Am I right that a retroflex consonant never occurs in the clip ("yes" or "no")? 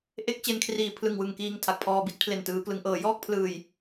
yes